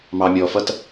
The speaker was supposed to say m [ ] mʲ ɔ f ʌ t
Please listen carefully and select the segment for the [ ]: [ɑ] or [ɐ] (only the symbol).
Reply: ɑ